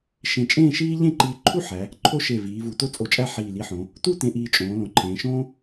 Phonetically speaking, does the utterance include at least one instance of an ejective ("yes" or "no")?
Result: yes